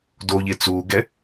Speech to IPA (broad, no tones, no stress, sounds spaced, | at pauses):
d o ʎ e t͡s uː ɡ ɛ